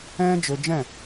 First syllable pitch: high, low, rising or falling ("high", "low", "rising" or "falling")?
high